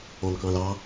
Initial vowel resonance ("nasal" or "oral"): nasal